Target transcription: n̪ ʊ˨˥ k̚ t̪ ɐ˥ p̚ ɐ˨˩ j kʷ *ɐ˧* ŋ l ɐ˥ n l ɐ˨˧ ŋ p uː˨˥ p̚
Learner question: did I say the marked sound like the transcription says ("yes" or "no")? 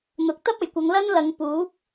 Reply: no